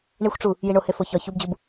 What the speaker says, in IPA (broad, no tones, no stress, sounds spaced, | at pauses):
ɳ i xʷ ʈ͡ʂ u | j i ɳ o h e f o ç ɒ ç u b d͡ʑ u b